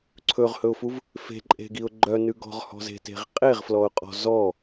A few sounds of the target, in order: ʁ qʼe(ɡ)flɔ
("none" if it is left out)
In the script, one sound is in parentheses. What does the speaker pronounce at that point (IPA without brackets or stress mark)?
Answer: ʁ